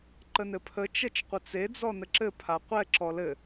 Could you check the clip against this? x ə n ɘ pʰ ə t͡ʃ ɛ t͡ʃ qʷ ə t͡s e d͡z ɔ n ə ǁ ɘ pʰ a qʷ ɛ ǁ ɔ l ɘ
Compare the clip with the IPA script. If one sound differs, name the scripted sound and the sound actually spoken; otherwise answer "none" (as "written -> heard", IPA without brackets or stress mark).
x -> ǃ